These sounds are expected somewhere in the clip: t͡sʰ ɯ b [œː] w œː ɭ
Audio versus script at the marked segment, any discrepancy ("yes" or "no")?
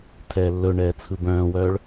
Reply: yes